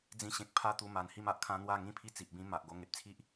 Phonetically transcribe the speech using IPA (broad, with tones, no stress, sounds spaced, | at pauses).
d͡z ĩ˧ ɕ ẽ˨ k̚ pʰ a˦ t̪ u˧ m a˨˩ n h i˦ m a˨ ʔ kʰ ã˦ n̪ w a˥˧ ŋ ĩ˥˧ pʰ i˦ t͡s i˨ ʔ b ĩ˦ m a˨ ʔ ɡ o˧ ŋ e˨ p̚ t͡sʰ i˦ ʔ